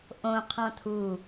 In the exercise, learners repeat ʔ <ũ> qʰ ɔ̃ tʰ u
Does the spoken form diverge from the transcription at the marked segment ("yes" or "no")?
yes